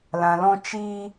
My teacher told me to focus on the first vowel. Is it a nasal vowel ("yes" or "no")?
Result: yes